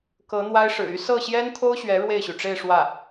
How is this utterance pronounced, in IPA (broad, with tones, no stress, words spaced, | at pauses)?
kɤ˧˥n̪wa˥ɪ̯ʂɻ̩˨˩ y˥ sɤ˥˩ɕjɛ˥nt̪ʰo˥ʊ̯ɕɥɛ˧˥ ɻwe˥˩ɪ̯ɕy˩ʈ͡ʂe˥˧ɪ̯ ʂwä˥˩